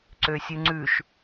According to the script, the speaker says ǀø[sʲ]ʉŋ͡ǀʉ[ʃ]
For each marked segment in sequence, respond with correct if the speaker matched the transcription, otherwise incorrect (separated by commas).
correct, correct